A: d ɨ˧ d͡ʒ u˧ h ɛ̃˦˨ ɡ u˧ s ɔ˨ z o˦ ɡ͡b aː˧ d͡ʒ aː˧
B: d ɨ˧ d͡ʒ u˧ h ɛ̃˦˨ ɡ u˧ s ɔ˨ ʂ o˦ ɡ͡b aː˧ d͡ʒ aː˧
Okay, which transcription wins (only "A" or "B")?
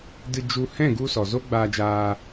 A